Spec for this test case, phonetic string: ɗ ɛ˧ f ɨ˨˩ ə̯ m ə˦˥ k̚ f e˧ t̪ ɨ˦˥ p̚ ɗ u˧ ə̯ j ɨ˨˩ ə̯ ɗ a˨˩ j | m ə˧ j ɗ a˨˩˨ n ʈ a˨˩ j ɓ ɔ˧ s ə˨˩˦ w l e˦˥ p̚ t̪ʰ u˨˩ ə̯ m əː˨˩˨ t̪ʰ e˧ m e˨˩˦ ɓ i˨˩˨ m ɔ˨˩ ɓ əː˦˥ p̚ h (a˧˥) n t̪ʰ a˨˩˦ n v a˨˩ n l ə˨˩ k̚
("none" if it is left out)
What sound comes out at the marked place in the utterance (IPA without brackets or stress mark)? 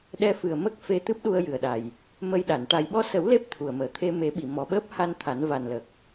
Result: a˧